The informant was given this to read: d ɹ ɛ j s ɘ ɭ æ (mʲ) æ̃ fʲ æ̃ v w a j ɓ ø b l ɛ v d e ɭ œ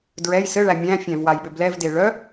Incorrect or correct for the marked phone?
correct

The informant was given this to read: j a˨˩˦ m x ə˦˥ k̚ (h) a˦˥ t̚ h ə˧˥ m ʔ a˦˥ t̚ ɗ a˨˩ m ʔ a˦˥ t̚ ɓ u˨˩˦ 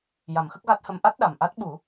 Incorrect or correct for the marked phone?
incorrect: ɣ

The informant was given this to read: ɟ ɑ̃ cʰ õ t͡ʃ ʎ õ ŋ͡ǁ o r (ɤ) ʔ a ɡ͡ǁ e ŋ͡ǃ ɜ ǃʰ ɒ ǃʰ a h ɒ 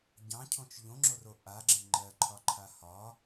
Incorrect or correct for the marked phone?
incorrect: o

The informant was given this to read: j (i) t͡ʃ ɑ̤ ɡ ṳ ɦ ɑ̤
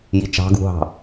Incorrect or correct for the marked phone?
correct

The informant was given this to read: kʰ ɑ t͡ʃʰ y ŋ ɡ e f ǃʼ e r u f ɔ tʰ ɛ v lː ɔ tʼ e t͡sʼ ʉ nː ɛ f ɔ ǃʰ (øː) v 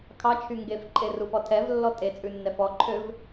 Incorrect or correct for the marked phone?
incorrect: ø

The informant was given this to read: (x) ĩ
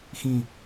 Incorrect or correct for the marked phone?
correct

